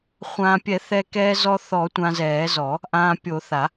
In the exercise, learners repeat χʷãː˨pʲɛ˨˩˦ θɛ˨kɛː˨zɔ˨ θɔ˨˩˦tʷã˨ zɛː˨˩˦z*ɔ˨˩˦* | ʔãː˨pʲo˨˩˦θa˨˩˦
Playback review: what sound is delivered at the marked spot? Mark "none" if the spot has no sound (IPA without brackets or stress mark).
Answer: ɔ˨˩˦